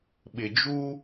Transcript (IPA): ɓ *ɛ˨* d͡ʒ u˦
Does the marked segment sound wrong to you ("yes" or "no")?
yes